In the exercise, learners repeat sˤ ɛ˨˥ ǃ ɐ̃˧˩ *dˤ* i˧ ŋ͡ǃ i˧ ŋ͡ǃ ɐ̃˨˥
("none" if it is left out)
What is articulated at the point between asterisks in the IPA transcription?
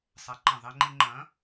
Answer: ðˤ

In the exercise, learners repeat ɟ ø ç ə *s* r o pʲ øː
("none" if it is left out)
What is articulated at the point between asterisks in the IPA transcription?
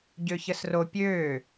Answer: s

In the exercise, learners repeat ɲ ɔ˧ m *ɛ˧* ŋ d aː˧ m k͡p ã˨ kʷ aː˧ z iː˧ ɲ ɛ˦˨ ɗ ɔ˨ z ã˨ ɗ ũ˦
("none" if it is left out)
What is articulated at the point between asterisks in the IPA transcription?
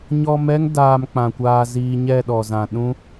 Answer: ɛ˦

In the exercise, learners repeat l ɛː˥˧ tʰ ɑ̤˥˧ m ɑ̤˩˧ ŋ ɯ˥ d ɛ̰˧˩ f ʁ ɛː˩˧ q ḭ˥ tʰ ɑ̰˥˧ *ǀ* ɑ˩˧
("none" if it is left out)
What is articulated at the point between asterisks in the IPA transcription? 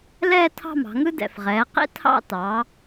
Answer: t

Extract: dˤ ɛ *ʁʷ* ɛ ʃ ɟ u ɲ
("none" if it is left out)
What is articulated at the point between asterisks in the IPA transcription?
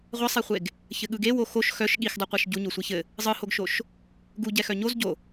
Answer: qʷ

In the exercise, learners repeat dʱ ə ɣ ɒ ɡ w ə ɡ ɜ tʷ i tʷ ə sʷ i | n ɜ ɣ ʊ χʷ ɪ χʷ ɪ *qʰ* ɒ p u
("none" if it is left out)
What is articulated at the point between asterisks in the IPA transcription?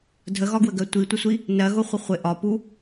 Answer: ʔ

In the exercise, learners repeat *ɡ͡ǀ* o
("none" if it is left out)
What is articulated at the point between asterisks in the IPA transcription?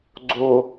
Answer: ɡ͡ǀ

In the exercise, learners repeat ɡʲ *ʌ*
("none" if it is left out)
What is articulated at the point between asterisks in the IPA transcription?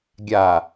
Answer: a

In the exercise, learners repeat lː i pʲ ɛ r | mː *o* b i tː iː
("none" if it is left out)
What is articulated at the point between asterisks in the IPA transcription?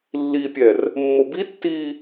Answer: o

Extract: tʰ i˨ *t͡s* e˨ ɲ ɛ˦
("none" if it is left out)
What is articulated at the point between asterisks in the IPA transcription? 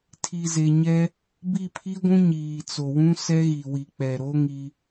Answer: z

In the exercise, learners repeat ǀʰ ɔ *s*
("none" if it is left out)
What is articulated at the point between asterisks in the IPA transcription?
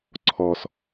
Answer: s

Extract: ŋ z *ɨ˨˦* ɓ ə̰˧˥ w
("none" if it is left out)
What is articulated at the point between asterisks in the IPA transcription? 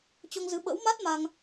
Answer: ɨ˨˦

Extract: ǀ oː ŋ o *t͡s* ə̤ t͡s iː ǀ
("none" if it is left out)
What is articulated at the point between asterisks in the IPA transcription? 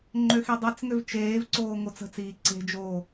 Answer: t͡s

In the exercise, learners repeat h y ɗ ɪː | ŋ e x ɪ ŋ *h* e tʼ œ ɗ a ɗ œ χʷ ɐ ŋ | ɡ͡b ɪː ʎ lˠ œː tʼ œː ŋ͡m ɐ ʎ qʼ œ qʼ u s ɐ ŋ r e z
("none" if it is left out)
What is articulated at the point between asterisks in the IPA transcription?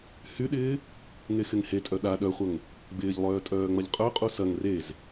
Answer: h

